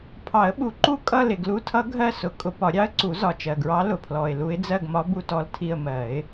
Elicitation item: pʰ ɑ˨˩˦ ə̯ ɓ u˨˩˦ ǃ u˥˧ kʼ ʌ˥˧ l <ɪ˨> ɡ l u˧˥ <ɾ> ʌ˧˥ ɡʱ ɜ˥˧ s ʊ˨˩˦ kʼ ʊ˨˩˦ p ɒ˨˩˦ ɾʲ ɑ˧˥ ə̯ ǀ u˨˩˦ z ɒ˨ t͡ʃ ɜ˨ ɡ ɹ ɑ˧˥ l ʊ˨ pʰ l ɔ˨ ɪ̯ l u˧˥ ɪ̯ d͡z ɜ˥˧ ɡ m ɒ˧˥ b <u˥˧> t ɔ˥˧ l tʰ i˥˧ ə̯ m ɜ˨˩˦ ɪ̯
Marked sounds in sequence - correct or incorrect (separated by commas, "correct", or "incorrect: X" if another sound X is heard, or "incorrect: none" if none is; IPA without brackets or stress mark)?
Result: correct, incorrect: tʰ, correct